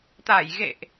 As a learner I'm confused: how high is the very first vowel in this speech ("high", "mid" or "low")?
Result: low